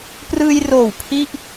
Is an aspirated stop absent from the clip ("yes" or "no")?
no